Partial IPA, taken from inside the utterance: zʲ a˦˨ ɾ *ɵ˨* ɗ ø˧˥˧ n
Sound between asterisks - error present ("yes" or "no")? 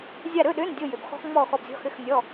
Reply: yes